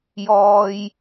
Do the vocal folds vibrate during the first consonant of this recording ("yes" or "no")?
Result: yes